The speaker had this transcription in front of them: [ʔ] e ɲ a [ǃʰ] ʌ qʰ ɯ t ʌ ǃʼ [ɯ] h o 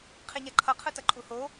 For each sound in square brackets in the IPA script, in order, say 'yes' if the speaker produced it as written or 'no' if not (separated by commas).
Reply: no, yes, no